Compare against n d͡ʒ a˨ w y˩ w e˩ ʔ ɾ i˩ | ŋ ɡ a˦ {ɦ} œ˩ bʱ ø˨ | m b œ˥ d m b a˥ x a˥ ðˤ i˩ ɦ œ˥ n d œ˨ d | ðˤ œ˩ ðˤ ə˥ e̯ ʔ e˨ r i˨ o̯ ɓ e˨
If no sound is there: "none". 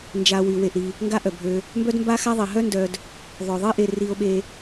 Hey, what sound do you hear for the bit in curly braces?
ʔ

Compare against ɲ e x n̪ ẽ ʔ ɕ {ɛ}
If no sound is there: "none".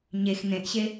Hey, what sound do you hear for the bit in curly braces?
e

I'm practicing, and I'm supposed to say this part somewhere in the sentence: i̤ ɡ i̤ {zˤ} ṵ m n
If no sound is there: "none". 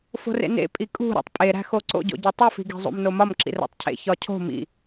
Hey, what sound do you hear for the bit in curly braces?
zˤ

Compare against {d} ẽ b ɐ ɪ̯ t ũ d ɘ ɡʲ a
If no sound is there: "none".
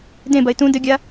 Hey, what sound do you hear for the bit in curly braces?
d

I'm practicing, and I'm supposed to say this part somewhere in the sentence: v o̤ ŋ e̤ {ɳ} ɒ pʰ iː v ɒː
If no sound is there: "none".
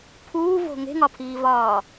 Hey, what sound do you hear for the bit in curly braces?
ŋ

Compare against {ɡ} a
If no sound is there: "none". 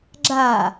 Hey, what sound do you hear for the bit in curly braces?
ɡ͡ǁ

